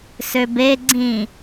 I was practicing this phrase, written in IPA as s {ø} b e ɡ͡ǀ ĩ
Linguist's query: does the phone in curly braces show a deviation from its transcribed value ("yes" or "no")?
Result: no